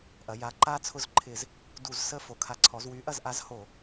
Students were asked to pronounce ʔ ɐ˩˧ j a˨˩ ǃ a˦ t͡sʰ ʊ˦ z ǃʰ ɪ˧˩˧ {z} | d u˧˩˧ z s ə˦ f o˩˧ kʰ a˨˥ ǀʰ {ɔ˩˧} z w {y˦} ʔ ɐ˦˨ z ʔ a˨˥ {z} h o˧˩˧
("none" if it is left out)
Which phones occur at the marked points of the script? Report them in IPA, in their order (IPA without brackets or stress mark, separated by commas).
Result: z, ɔ˩˧, y˨˥, z